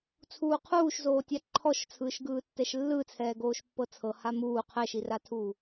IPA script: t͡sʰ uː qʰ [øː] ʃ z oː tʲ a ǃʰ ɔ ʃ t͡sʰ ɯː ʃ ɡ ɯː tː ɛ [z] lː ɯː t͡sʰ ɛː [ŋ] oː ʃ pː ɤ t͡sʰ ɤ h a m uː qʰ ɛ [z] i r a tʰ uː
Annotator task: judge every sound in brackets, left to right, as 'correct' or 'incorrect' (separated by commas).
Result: incorrect, incorrect, incorrect, incorrect